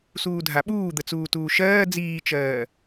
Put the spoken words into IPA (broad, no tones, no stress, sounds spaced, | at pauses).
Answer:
s uː dʱ a ɓ uː d̪ ə t͡s uː t uː ʃ ɜː d͡z iː t͡ʃ ɜː